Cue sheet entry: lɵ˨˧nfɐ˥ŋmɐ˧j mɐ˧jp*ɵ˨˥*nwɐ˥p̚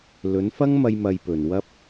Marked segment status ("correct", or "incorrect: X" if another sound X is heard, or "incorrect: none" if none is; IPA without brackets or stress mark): incorrect: ɵ˨˩